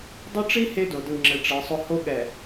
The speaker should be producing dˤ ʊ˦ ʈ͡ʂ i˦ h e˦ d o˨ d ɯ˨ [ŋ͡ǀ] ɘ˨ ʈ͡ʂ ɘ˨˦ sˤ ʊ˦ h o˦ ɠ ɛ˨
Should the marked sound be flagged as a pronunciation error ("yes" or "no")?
yes